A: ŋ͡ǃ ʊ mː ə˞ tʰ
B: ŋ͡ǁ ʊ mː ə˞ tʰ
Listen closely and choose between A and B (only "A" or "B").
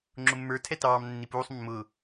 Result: B